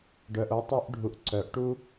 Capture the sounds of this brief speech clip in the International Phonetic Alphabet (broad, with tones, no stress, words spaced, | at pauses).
ɖœ˨ʔo˧ tˤu˧ʔɖʱu˨ʔ ǀœ˨˦ʔ ʈu˦